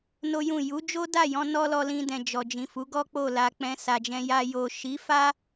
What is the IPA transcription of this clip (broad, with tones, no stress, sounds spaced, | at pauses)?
n o˦ j ũ˦˨ j u˨˦ d͡ʒ o˦ d a˦˨ j ɔ̃˧ n ɔ˦ l ɔ˧ l ĩ˧ d ɛ̃˨ d͡ʒ ɔ˨ d͡ʒ ĩ˨ f u˨˦ ɡ ɔ˦ k͡p o˦˨ l a˧ k͡p ɛ̃˧ s a˨ d͡ʒ ɛ̃˧ j a˧ j o˨ ʃ i˨˦ f a˦